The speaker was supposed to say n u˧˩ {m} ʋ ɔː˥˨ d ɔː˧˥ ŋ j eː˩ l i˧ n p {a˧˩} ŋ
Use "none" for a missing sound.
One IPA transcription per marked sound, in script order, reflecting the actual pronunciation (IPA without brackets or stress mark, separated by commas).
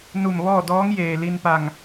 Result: m, a˧˩